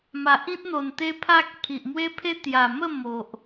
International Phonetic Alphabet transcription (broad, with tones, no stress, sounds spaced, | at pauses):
m a˨ ʔ ĩ˦ t̚ n̪ o˨˩ n t̪ e˦ pʰ a˦ k̚ pʰ i˨ ʔ m w e˦ pʰ e˦ t̪ j a˨˩ m ə˥˧ m o˨ ʔ